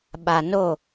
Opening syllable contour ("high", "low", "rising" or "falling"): low